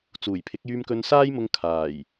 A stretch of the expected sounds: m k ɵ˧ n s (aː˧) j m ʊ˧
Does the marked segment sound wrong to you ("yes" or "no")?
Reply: yes